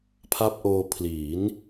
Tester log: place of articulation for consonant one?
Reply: labial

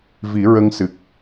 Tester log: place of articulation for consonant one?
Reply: labial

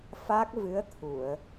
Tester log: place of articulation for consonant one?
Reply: labial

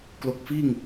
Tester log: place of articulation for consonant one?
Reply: velar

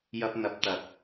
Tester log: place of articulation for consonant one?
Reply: palatal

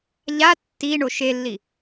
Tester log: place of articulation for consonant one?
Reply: palatal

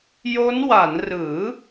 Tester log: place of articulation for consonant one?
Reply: palatal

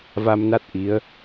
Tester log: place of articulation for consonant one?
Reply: labial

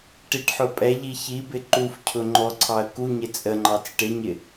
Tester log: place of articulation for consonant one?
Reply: retroflex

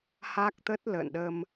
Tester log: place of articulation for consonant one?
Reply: glottal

